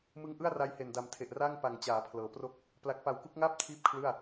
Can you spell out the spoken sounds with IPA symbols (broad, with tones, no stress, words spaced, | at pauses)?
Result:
mɯ˦˥ŋʔɯ˥˩a̯ ra˧jhe˨˩nda˨˩mtʰe˨˩ʔ ra˥˩ŋpa˨˩ŋ t͡ɕaː˩˦pʰlɤː˩˦pro˥˩k̚ | pla˨˩k̚pa˨˩wku˦˥k̚ŋaː˥˩p̚ tʰiː˥˩p̚kʰlɯ˥˩a̯